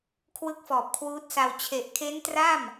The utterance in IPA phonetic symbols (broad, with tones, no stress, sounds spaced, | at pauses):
kʰ w ɯ˦˥ k̚ f ɔː˨˩ p̚ kʰ w uː˦˥ t̚ s a˧ w t͡ɕʰ e˨˩ ʔ kʰ e˦˥ n t r a˥˩ m